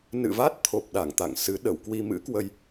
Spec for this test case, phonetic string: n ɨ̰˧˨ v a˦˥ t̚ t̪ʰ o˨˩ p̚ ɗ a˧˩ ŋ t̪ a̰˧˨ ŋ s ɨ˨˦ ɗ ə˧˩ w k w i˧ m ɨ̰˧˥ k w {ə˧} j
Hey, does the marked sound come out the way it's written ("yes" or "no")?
yes